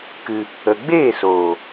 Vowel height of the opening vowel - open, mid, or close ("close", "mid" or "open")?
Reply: close